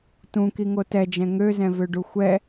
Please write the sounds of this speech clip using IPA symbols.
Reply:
t ũ k i ŋ o t ɛ d͡ʒ ɛ̃ ŋ ø z ɛ̃ v ø ɖ u xʷ ɛ

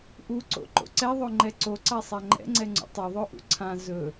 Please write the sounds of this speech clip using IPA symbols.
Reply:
ʔ u ǀ o̰ ǃ o̰ ǀ ɛ ðˤ o ŋ͡ǃ ɛ ǀ o ǀ a sˤ a ŋ͡ǃ ɛ̰ ŋ͡ǀ ɛ ŋ͡ǀ ṵ tˤ ɵ ðˤ o ʔ ṵ ǀʰ ã z ɵ

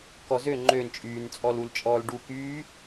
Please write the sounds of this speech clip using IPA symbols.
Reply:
k ɔ z ø ŋ͡ǃ ø n t͡ʃʼ yː n t͡sʼ ɔ l u l t͡ʃʼ ɔː l ɖ u k yː

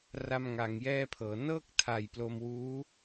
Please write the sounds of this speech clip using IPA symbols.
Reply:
r a˥˩ m ŋ a˧ ŋ j ɛː˥˩ pʰ ɤː˩˦ n ɤː˥˩ k̚ tʰ a˨˩ j p l o˧ m w uː˦˥

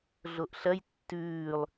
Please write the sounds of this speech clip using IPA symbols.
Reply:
ɮ o ʔ ɬ ɐ j tː ʉː lˠ

